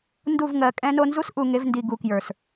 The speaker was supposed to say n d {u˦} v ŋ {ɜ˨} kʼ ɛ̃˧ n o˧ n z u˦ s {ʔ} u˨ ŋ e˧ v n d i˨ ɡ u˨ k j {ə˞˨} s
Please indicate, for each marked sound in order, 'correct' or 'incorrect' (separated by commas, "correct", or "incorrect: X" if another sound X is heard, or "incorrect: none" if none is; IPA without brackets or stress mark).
incorrect: u˦˨, correct, correct, correct